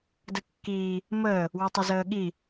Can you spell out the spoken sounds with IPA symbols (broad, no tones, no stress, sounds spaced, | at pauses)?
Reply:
d ə kː iː | m əː | w ø tˤ ə z əː ɠ i